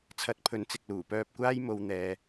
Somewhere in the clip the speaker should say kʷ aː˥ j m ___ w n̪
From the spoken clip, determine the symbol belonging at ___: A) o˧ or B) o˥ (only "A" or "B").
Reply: A